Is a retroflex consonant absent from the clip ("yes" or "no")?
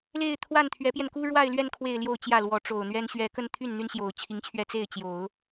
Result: no